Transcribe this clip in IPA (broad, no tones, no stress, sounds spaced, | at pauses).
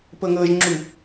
p ɤ ŋ ɤ ʒ ŋ͡ǁ u